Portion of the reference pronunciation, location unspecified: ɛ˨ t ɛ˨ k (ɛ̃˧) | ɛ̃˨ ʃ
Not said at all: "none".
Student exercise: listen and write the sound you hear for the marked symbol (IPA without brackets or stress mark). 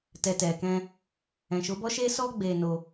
ɛ̃˧